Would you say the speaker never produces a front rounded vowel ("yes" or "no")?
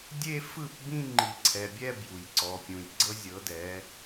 yes